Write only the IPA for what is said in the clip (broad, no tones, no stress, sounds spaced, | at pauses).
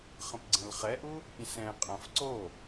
χ ə̃ p ɡ͡ǀ ə̃ l χ ɛ ʔ u | pʲ ɛ̃ s ɛ̃ qʼ ã f ǀ o